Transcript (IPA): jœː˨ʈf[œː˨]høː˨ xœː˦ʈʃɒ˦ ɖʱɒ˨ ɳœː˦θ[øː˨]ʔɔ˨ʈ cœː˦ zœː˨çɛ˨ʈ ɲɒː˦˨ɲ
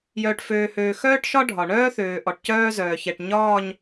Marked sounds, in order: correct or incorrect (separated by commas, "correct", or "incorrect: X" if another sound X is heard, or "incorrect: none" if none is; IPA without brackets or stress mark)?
incorrect: øː˨, correct